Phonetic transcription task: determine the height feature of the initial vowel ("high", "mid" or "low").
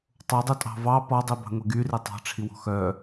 mid